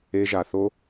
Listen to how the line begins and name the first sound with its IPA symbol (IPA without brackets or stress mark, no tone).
e